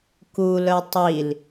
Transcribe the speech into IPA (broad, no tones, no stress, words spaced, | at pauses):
kulœ tˤil